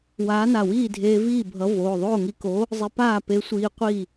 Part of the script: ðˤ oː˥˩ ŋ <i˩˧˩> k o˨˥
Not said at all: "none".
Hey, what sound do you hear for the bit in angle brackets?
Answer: i˧˩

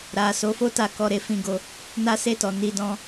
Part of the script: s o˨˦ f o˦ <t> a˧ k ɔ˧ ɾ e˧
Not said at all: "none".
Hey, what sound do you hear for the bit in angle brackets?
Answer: t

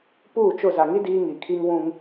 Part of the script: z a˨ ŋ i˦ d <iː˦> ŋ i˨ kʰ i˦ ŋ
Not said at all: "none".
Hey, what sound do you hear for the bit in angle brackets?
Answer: iː˦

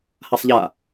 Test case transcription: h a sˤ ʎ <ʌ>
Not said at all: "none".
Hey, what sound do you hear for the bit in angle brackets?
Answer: a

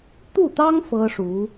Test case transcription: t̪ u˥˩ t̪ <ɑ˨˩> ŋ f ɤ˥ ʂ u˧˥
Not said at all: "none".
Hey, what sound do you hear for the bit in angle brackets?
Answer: ɑ˥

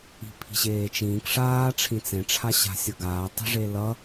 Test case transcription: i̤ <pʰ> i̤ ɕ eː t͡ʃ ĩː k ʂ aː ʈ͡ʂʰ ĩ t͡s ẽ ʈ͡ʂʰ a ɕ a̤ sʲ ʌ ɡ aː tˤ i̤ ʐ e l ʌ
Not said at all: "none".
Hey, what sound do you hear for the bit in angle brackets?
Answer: pʰ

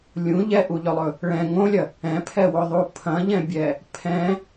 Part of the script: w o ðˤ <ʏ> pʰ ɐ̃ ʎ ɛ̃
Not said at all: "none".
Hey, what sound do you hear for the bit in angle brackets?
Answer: u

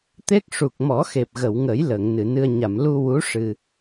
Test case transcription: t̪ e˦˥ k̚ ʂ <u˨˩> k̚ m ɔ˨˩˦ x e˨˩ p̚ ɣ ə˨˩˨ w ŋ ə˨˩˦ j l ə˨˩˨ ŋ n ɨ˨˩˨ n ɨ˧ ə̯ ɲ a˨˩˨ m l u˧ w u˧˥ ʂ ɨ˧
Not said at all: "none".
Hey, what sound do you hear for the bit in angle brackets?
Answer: u˨˩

